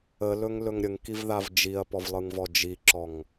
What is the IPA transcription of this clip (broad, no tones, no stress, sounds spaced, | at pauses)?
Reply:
ə l ɵ ŋ l ɵ ŋ ɾʲ ə ŋ k i v ð a v d͡ʒ i ɐ̯ p ɔ v lˠ ɯ ŋ v ɔ d͡ʒ i ǁ ɔ ŋ